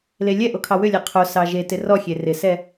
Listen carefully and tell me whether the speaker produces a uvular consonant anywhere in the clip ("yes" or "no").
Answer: yes